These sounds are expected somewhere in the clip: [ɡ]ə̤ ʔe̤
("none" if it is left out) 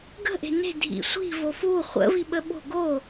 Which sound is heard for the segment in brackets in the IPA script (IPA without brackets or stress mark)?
ɡ